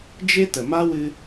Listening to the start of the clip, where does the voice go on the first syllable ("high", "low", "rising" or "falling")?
high